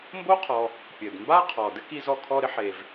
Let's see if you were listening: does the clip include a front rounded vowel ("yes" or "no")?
no